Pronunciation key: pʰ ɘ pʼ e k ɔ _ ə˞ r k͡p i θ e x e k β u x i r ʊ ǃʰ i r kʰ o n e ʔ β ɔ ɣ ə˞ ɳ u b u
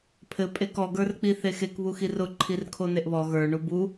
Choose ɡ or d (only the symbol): ɡ